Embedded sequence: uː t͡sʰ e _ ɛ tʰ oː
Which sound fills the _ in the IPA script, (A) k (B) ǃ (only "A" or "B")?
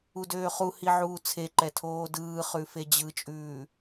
B